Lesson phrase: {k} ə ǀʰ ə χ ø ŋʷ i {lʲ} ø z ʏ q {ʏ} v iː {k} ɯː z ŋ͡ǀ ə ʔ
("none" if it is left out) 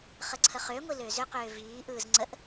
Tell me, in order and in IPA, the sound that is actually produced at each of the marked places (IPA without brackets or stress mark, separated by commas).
χ, l, ʏː, ʔ